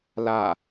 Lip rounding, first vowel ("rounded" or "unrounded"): unrounded